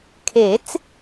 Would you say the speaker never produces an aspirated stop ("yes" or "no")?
no